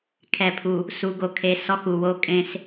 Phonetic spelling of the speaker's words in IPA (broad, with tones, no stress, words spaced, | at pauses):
kʰɛ˨pʰu˨ | su˨ɡo˨kʰe˨ sɔ˦xu˨wo˦ kʼẽ˦s